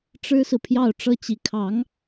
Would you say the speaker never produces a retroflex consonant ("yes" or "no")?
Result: no